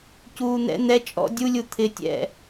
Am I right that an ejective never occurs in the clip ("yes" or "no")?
no